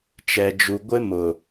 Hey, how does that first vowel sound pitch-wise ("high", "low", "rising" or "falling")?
low